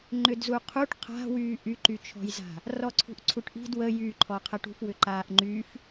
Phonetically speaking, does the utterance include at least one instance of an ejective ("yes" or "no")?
no